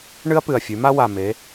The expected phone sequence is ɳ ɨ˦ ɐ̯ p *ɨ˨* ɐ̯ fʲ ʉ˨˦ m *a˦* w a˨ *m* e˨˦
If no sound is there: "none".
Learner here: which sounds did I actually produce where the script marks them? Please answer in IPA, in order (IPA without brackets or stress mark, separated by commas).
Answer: ɨ˨, a˦, m